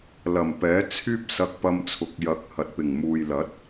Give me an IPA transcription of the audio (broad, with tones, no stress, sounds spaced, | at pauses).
l ɐ˨˩ m p ɛː˨˥ t͡sʰ yː˥ p̚ s ɐ˧ k̚ p ɐ˧ m t͡sʰ ʊ˨ k̚ j ɐ˨˥ k̚ h ɐ˨ t̚ p ɪ˨˩ ŋ m uː˨ j l ɐ˨˥ t̚